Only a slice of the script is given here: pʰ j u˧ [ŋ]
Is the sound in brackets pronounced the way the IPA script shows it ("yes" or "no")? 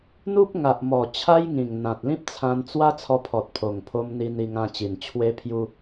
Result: no